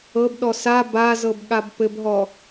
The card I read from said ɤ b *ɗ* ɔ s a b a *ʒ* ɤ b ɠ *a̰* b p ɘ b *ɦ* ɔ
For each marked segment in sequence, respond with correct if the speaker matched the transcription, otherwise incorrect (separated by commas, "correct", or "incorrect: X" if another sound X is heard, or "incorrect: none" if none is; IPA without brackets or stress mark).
correct, incorrect: z, incorrect: a, correct